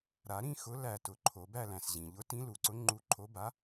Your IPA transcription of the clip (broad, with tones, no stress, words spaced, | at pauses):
ɾa˨˩˦ ɾĩ˥˧xʊ˨˥ læ˧˩tʊ˨˩˦ ǃʰo˨˩˦bæ˥˧læ̃˩sʑĩ˩ ʎʊ˨˥tĩ˨˥lu˩ǀʊ˨˥ ŋ͡ǃu˨˥ǃʰo˨˥ba˨˥